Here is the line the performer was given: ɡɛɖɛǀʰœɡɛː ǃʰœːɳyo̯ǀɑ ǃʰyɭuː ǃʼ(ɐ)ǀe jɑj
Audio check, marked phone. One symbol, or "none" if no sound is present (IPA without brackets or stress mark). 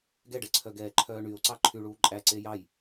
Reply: æ